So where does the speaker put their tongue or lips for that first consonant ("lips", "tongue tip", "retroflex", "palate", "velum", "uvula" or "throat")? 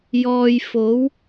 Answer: palate